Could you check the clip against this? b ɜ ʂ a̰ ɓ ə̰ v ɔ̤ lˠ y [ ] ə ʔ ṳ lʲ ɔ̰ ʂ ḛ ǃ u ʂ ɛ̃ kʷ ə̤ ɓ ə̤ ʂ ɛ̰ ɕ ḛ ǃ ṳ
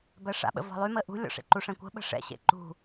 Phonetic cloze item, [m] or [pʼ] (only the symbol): m